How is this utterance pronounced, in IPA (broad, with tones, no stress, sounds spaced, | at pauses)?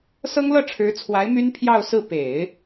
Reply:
s ɤ˥ ŋ l ɤ˥˩ ʈ͡ʂʰ ɻ̩˧˥ t͡sʰ w a˧˥ ɪ̯ m y˥ n pʰ j ɑ˥˧ ʊ̯ s ɹ̩˥˩ p e˨˩˦ ɪ̯